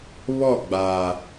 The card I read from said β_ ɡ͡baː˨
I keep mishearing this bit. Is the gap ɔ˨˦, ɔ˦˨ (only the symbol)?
ɔ˦˨